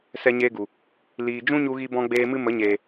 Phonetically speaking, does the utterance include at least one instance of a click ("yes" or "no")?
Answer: no